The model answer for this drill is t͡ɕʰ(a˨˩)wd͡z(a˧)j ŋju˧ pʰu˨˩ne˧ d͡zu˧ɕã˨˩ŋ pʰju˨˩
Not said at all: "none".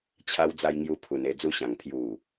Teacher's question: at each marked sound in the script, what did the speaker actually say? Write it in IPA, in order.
a˧, a˧

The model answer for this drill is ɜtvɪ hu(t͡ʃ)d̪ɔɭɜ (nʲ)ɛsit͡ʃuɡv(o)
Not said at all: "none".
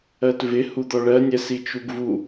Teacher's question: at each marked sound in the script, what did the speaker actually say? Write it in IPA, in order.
none, nʲ, u

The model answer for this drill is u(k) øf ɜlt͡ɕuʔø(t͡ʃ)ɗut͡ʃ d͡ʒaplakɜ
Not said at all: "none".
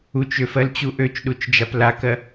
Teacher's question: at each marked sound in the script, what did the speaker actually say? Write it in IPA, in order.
t͡ʃ, t͡ʃ

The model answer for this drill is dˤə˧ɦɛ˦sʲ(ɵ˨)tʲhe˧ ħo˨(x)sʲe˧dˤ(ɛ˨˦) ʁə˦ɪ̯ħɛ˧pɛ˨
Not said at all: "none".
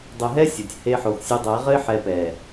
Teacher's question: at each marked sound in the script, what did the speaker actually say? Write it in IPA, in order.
o˨, x, ɛ˨˦

